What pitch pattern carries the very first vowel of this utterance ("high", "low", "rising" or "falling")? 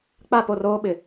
falling